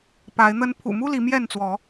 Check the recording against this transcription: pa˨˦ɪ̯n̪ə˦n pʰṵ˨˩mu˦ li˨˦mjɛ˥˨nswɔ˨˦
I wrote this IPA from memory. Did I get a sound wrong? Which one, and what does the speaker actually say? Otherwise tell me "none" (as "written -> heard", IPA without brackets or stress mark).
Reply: s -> t͡s